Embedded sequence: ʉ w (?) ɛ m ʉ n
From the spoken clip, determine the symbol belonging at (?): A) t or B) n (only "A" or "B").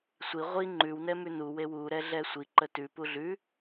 B